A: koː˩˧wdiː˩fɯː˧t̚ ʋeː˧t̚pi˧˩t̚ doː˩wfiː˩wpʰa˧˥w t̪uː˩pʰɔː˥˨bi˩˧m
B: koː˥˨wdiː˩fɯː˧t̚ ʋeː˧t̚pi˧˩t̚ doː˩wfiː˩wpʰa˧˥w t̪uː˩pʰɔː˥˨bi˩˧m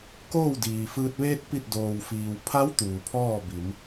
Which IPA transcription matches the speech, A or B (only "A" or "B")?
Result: B